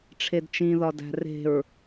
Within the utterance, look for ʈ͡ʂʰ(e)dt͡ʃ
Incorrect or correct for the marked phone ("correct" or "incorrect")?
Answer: correct